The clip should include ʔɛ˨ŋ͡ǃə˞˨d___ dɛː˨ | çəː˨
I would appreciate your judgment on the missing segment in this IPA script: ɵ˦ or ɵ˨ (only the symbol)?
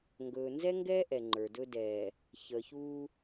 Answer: ɵ˦